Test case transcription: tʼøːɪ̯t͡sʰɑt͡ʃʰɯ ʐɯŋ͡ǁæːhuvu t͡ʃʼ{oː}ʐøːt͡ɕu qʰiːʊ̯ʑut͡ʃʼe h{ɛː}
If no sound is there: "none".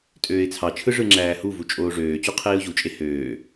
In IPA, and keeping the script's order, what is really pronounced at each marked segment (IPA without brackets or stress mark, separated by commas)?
oː, øː